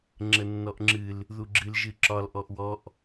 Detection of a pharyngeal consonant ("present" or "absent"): absent